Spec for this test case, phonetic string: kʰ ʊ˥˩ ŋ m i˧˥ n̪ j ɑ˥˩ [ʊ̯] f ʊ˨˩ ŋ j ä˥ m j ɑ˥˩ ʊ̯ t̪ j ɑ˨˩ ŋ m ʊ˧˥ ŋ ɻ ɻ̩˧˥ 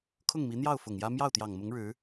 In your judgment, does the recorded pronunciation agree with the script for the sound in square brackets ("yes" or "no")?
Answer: yes